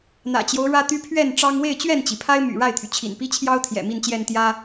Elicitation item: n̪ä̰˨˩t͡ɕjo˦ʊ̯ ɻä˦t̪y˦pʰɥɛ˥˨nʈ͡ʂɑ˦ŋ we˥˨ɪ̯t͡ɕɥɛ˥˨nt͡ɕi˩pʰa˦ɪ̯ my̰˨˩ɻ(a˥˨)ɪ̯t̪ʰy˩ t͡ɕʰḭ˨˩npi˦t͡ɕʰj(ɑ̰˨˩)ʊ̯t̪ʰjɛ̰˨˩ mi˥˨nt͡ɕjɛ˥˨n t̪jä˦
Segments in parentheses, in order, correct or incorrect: correct, incorrect: ɑ˦

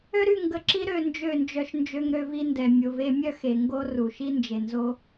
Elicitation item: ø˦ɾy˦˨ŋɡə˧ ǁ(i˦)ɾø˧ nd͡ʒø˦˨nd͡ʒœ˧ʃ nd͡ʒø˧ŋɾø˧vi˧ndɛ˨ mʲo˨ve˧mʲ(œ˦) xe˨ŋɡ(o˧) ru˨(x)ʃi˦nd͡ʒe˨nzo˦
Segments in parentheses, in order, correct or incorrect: correct, correct, correct, incorrect: none

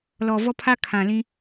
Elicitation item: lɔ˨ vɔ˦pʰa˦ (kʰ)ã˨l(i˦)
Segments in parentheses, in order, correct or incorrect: correct, incorrect: ĩ˦

